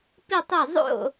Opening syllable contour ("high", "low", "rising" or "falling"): falling